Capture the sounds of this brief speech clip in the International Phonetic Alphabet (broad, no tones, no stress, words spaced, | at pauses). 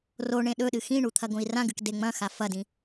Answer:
ro ɳẽɗɵɗɨ xĩɳu t̪ʰɐɡõi̯rãɡɨk deŋ͡mɐ̃xa fɐdĩ